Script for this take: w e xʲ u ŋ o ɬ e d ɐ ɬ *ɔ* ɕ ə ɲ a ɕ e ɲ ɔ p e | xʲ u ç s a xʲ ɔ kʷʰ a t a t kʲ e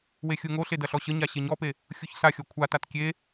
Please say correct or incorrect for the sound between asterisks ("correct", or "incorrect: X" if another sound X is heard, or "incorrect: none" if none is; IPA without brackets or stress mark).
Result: correct